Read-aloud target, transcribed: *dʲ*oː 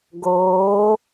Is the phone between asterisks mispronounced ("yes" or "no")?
yes